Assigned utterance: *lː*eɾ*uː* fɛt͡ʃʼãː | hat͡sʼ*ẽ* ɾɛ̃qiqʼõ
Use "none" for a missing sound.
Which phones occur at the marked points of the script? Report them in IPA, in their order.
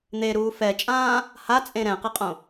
n̪, uː, ẽ

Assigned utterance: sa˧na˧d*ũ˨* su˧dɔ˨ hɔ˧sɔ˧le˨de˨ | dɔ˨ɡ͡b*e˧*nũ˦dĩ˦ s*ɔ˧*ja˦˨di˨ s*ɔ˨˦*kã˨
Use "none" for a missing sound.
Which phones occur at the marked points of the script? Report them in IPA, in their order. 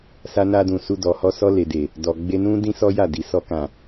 ũ˨, e˧, ɔ˦, ɔ˧

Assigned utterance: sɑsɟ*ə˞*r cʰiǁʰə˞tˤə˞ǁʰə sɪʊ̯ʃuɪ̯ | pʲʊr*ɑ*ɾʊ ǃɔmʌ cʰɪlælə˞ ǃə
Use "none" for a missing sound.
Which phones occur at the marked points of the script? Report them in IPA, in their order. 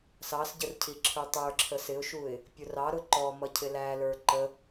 ə, ɑ

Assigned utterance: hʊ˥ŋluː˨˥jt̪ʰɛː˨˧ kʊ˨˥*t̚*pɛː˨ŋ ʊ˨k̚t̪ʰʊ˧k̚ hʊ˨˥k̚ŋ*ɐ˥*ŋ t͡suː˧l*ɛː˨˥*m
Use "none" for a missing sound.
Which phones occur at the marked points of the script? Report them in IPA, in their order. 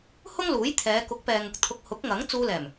k̚, ɐ˨˥, ɛː˨˩

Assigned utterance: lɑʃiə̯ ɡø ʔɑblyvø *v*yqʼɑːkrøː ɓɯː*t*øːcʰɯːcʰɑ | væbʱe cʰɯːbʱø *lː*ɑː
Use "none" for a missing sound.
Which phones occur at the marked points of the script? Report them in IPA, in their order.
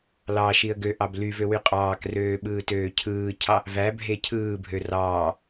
w, t, r

